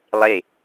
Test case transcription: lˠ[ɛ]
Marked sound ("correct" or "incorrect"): incorrect